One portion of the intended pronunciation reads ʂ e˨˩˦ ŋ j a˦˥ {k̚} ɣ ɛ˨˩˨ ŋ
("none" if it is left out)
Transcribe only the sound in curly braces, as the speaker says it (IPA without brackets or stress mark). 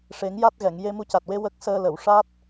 t̚